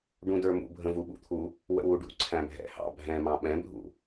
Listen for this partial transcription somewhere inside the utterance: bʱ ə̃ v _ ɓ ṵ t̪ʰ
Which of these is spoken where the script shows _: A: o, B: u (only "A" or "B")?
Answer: B